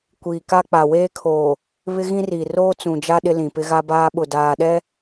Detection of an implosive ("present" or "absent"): present